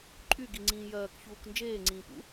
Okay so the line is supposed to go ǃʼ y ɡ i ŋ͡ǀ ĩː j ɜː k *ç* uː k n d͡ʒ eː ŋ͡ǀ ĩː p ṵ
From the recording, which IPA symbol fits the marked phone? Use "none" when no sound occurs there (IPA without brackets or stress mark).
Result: ç